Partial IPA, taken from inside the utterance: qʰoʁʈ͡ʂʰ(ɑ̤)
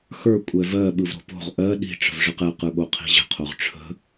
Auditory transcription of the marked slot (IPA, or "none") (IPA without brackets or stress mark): ə̤